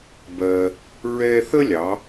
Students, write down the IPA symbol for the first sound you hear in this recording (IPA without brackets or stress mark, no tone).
b